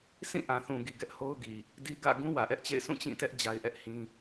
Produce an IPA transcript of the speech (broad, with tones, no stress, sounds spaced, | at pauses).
s ĩ˦˨ ʔ ã˨ θ ũ˨ ɡ i˨ ɡ ɛ˦ ʔ h o˦ ʊ̯ ɡ i˨ | d i˦ ɡ ä̰˦˨ ɡ ũ˦ w ä˨ ʔ ɛ˦ ʔ t͡ɕ ḛ˦˨ ɪ̯ sʰ ũ˦˨ t͡ɕ ĩ˦˨ t ɛ˦ ʔ d͡ʑ a˦ ɪ̯ ʔ ɛ˦ ʔ h ĩ˦